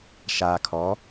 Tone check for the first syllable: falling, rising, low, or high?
low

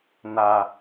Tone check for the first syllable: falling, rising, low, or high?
low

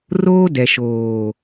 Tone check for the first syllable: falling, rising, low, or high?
high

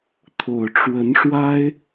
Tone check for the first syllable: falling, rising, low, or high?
low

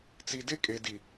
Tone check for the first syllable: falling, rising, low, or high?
low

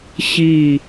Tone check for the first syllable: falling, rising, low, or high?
low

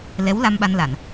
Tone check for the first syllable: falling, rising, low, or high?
rising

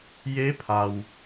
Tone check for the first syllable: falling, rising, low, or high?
rising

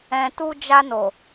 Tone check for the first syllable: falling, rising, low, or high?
low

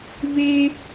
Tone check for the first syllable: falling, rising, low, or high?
high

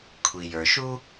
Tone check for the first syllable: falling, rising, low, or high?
low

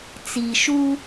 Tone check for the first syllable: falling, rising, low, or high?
low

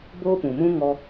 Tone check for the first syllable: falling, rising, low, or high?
high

